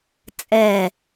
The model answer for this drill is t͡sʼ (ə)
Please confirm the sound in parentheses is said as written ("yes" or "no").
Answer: no